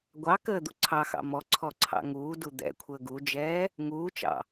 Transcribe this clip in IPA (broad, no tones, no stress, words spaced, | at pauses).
ɡʷɑ kəːd̪uǀʰɑxɑ̰ mɔǀʰɔ ǀʰɑ̰ŋuːdu d̪ɛ̰kʷʰəː ɡud͡ʒɛː | ŋuːt͡ʃɑ̰